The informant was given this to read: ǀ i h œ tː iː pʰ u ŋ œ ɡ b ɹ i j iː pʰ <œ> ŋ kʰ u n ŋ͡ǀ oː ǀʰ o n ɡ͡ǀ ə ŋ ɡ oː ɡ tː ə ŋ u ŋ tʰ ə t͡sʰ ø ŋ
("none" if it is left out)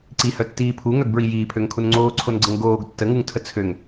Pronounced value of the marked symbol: ø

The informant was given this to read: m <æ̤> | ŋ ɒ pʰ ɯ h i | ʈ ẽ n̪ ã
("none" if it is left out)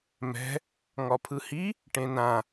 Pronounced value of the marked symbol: ɛ̤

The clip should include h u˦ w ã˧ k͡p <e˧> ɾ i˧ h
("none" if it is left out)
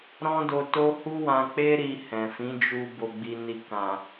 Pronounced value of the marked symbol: e˦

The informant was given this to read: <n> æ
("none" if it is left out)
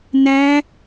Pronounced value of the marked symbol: n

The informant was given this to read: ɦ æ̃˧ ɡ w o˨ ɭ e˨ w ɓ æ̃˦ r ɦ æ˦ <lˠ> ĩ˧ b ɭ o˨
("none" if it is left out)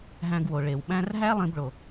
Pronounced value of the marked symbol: lˠ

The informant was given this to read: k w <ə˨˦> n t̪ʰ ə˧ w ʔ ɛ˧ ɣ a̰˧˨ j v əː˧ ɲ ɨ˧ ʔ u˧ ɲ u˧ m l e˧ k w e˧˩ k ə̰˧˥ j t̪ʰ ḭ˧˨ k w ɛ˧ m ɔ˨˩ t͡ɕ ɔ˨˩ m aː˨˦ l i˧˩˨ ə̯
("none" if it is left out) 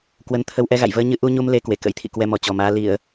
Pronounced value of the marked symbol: ə˨˦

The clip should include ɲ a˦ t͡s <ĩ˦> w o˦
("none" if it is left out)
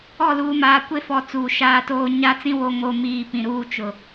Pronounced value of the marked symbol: ĩ˦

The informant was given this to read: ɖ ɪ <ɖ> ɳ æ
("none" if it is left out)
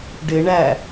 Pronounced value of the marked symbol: none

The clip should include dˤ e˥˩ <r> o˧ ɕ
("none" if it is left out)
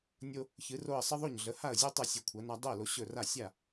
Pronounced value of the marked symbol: l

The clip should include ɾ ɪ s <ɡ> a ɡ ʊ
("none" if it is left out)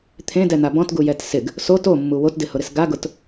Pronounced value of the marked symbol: ɡ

